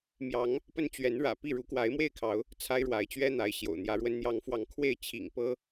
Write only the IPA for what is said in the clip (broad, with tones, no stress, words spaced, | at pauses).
mjɑ˨˦ŋ | pə˦n t͡ɕɥɛ˨˦nɻä̰˨˩ pi˥˨ ɻu˨˦kwa˨˦ɪ̯mwe˥˨ɪ̯kʰɑ˨˦ʊ̯ | t͡sʰa˦ɪ̯ɻwa˨˦ɪ̯t͡ɕɥɛ˦ n̪a˨˦ɪ̯ ɕjo̰˨˩ʊ̯n̪jä˨˦ɻwə˦n n̪jɑ˨˦ŋfwɑ˨˦ŋ kʰwe˥˨ɪ̯ t͡ɕʰḭ˨˩ŋpɤ˦